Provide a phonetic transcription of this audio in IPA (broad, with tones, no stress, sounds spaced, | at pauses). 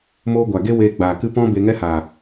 m oː˦ ɡʷ a˨ ɡ e˦ w eː˧ ɡ͡b aː˨ k ɨ˦ p ɔ̃˦ b e˧ ŋ ɛ˦ h aː˨